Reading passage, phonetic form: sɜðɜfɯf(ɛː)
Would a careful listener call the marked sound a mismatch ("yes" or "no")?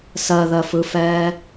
no